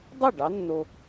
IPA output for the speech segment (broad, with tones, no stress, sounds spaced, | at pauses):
dˤ ʉ˥˩ ɖ ɑ˨˦ nː o˨